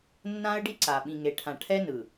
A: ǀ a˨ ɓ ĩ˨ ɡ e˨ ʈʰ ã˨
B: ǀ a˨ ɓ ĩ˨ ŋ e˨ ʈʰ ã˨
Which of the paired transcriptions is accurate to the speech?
B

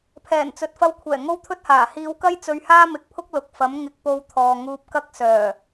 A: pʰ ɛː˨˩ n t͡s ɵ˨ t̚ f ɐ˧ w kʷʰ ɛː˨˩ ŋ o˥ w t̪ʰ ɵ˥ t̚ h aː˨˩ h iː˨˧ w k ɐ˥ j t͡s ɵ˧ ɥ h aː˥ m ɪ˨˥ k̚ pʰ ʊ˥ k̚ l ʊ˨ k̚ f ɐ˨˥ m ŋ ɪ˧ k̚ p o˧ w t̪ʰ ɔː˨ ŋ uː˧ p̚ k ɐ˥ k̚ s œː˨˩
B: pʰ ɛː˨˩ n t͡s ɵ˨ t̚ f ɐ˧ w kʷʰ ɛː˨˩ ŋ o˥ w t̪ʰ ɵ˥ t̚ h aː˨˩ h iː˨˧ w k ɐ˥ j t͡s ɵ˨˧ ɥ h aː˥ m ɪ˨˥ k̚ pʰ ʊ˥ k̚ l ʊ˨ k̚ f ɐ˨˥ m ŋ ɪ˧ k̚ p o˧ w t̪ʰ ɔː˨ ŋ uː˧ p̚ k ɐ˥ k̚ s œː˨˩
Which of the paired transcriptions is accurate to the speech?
A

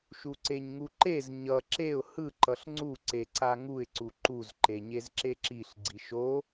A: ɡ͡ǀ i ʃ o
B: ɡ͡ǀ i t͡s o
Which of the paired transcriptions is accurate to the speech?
A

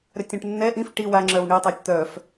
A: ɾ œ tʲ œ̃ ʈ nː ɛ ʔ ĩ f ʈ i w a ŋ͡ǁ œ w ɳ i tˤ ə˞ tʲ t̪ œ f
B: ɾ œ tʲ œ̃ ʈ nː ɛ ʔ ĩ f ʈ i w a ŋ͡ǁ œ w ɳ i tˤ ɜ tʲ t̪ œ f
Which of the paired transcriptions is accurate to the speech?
B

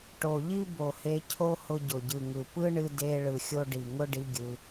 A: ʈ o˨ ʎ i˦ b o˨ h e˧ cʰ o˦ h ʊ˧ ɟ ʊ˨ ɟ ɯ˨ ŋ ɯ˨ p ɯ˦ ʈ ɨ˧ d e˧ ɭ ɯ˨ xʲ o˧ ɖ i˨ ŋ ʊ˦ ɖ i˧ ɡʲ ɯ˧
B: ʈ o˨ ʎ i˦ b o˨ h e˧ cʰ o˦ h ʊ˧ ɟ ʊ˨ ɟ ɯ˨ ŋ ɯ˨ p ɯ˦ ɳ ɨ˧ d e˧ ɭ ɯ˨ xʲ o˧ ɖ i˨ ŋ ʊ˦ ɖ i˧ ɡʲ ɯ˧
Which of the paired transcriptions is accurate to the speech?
B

